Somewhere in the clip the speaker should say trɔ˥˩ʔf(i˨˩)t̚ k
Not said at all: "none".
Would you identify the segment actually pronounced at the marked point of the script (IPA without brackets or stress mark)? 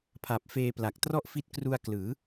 i˦˥